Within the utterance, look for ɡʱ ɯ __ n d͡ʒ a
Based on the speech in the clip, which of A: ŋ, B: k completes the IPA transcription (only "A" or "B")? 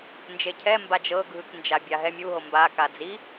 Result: B